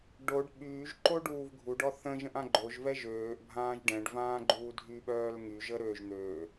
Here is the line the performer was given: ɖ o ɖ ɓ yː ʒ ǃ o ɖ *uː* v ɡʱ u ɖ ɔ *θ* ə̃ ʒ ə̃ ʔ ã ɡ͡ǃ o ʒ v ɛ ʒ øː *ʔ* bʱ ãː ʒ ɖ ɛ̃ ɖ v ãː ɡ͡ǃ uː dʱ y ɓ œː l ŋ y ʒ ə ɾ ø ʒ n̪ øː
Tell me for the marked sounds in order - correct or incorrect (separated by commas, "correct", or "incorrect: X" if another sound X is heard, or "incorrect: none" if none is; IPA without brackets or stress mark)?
correct, correct, correct